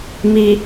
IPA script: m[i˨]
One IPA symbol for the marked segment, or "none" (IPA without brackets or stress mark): i˨